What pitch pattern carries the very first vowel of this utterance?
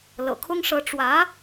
low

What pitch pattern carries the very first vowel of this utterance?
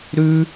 high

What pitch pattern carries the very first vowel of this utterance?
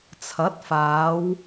rising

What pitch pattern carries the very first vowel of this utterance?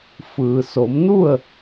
low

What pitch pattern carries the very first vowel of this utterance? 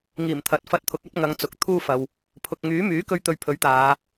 low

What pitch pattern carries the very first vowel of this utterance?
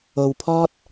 low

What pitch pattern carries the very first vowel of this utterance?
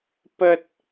high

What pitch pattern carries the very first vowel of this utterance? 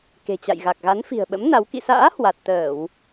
low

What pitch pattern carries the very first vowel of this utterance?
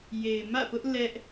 low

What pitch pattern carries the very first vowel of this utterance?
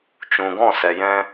low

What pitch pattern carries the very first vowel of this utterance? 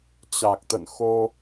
low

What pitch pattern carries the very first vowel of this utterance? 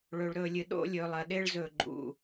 low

